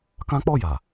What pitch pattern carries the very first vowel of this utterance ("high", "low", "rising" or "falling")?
high